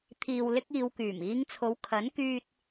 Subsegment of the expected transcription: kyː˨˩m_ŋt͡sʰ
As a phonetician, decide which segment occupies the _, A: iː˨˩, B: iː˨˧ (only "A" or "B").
B